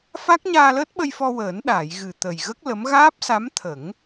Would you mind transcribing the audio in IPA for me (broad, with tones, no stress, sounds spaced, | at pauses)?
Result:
f a˦˥ k̚ ɲ aː˧ l əː˦˥ t̚ ɓ ə˧ j f ɔ˧ w əː˨˩˦ n ɗ aː˨˩˨ j ɣ ɨ˨˩ t̪ ə˨˩ j ɣ ə˦˥ k̚ l ə˧˥ m ɣ aː˦˥ p̚ s a˧˥ m t̪ʰ ə˨˩˦ ŋ